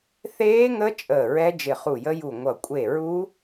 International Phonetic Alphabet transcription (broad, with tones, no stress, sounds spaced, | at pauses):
θ eː˦˥ ŋ ə˦˥ t͡ʃʼ əː˧˩ ɹ ɛ˦˥ d͡ʒ ɪ˧˩ χ u˧˩ j ə˦˥ j u˧˩ ŋʷ ʌ˧˩ kʷʼ e˧˩ ɹ u˦˥